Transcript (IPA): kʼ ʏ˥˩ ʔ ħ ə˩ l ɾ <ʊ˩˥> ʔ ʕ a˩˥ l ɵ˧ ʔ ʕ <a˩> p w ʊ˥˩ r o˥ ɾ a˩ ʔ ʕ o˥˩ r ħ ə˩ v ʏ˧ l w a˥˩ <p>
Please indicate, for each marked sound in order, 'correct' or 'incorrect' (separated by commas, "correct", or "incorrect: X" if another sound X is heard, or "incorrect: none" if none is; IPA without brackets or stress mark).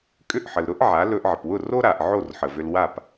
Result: incorrect: ʊ˥, incorrect: ə˩, correct